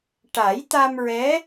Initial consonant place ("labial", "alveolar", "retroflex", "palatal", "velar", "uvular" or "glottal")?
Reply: retroflex